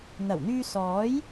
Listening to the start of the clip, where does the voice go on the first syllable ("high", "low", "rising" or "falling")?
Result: low